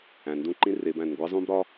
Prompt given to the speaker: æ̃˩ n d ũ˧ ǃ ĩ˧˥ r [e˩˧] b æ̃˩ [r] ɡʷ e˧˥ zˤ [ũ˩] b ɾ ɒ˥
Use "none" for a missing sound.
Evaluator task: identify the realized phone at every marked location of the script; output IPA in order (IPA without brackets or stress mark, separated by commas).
e˩˧, n, ũ˥